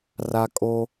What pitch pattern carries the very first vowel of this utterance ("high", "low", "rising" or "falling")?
high